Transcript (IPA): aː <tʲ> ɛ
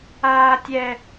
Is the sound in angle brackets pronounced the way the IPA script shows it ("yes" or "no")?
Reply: yes